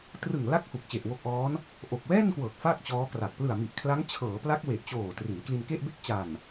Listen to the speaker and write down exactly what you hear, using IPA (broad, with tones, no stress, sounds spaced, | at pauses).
t r ɯ˨˩ ŋ l a˦˥ k̚ h u˨˩ k̚ t͡ɕ e˨˩ ʔ w o˦˥ k̚ ʔ ɔː˦˥ n | ʔ o˨˩ k̚ w ɛː˥˩ n k w ɤː˨˩ k̚ f a˥˩ k̚ t͡ɕ ɔː˦˥ k r a˨˩ k̚ p l ɯ˨˩ a̯ m i˨˩ ʔ kʰ l a˦˥ ŋ t͡ɕʰ ɤː˩˦ p l a˦˥ k̚ w e˨˩ ʔ t͡ɕ oː˨˩ t r i˩˦ n k l i˧ n k e˥˩ ʔ b e˥˩ k̚ t͡ɕ a˨˩ n